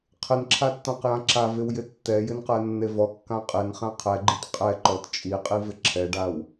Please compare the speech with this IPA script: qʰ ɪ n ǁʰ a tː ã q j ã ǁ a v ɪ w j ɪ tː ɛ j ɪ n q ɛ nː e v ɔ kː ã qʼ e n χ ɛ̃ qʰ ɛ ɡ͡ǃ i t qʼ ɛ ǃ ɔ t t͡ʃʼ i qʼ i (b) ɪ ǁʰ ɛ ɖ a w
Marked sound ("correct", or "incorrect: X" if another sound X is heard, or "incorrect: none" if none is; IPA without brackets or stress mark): incorrect: v